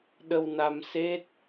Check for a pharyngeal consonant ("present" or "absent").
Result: absent